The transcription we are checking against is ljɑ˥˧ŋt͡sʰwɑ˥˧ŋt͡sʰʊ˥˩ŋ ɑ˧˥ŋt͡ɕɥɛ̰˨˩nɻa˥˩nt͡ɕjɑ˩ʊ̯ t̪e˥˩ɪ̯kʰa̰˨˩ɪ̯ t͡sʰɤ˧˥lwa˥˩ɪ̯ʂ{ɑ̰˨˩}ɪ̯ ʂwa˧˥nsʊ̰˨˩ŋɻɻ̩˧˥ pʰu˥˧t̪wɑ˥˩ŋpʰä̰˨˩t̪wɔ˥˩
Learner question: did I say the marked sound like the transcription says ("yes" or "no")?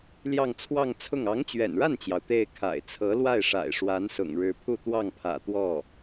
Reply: no